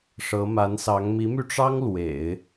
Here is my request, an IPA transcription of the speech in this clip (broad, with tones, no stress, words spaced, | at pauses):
ʂɤ˧˥ ma˧˥nsɑ˧˥ŋ mi˧˥my˧ʈ͡ʂɑ˥ŋ lwḛ˨˩˦ɪ̯